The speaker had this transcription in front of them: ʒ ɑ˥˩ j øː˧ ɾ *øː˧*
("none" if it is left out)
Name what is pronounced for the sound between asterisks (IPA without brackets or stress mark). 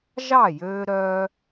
œː˧